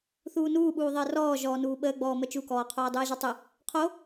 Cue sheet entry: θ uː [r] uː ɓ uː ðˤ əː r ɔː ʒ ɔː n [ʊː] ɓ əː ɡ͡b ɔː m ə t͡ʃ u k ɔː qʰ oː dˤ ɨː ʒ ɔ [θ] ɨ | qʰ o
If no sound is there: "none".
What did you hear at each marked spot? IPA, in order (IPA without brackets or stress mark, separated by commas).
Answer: n, uː, tˤ